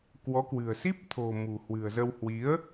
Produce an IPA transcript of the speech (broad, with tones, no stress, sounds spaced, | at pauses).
k w ɔ˨˦ k w ɨ̤˨˩ ə̯ s i˦˥ p̚ t̪ʰ o̤˨˩ m ṳ˨˩ h w ɨ̤˨˩ ə̯ z ə˧ w h w i˨˦ ə̯